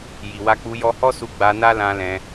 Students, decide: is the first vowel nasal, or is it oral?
oral